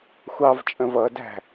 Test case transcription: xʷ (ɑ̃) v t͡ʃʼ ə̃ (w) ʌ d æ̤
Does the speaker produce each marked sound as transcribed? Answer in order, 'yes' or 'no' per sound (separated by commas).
no, no